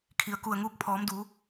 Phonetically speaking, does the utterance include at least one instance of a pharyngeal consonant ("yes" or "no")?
no